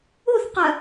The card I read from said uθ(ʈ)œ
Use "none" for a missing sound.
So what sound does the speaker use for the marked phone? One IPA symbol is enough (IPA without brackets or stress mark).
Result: q